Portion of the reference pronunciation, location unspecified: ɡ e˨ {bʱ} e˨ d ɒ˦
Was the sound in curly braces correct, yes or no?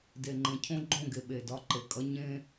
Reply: no